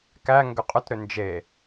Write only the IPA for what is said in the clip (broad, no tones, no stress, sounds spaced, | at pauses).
k æ ŋ ɡ ʏ qʼ ʏ t ɾ ʏ n d͡ʒ e